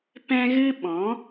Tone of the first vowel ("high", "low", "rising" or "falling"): high